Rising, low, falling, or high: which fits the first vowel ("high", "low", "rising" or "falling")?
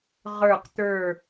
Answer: low